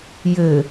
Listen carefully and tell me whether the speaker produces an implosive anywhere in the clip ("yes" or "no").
no